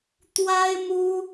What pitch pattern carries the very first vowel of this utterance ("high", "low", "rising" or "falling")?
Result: high